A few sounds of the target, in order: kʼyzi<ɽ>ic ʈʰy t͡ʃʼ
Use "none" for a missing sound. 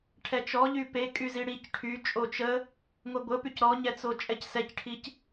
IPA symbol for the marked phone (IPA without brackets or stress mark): ɽ